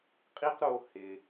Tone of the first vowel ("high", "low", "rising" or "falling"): high